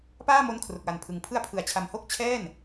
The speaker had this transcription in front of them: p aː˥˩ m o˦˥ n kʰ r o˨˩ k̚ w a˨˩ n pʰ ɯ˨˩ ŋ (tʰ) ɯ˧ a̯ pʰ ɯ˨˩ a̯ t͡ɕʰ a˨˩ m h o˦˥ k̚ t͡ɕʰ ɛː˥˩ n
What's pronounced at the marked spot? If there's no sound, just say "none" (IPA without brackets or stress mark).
pʰ